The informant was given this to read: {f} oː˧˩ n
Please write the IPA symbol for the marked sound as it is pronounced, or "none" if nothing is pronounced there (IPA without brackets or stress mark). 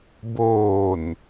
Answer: b